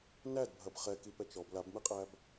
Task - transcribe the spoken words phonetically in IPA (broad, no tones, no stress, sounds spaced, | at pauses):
n æ d bʱ ɐ b χ ɛ k i p ɛ t͡ʃ ɔ b l a b m i qʼ æ b